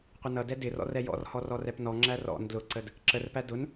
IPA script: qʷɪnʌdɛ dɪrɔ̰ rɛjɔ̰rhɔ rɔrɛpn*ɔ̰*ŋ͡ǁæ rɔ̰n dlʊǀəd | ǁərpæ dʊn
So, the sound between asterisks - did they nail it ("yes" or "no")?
no